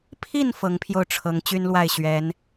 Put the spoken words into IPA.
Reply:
pʰ i˥˨ n f ɤ˨˦ ŋ pʰ j o˧ ʊ̯ ʈ͡ʂʰ ɤ˨˦ ŋ t͡ɕ y˦ n l w a˥˨ ɪ̯ ɕ ɥ ɛ˨˦ n

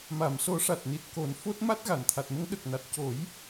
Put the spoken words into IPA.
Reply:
m a˨˩˨ m s o˨˩˦ ʂ a˨˩ t̚ n i˨˩ t̚ k o˨˩˦ n f o˦˥ t̚ m a˦˥ t̚ ɣ a˨˩˨ n t̪ʰ a˨˩ t̚ m ə˧˥ ŋ ɗ ə˨˩ k̚ n a˨˩ t̚ c o˨˩˦ j

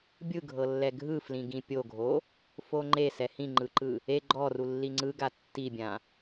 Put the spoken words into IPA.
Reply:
bʲ ɯ ɡʱ ɤ lː ɛ ɡʱ ɯ f l ĩ ɡ ĩ pʲ o ɡʱ o | f o ŋ͡ǃ e s ɛ h ĩ ŋ͡ǃ ɯ ǃ ɯ | e ɡ͡ǃ ɔ r u lː i ŋ͡ǀ ɯ ɡ a tː i bʲ ã

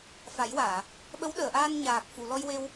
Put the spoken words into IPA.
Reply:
f a˨˩˦ j w aː˨˩˨ | ɓ ə˧˥ w ɗ əː˨˩˨ ʔ aː˧ n ɲ aː˨˩ k̚ f u˨˩˨ l ɔ˧ j w e˧ w

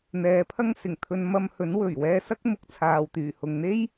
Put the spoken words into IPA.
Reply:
n̪ ɛː˨˧ pʰ ɐ˥ ŋ s ɪ˨˩ ŋ t̪ʰ ɵ˧ n m ɐ˧ m h ɵ˨˥ n w ɵ˨˩ ɥ w ɛː˧ s ɐ˥ k̚ m ʊ˧ k̚ t͡sʰ aː˨ w t̪ yː˨˩ h ʊ˨ ŋ n̪ e˥ j

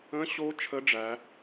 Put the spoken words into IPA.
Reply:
ə̃˧˥ ɕ o˧˥ t͡ʃʰ ə˧˥ ɖ͡ʐ æ˩˧

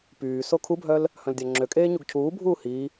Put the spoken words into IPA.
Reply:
p yː s o kʰ u bʱ œ l | h œ̃ l dʲ a ŋ͡ǁ ø kʼ eː ɲ u ɡ cʰ uː bʱ uː h i

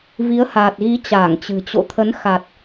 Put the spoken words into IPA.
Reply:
v i˨˦ ə̯ h aː˨˩ t̚ ɣ i˨˦ t͡ɕ aː˧˩ ŋ t͡ɕ ɨ̤˨˩ t͡ɕ o̰˧˨ t̪ʰ ə˨˦ n x a˨˩ t̚

